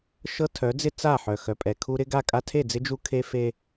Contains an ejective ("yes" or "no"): yes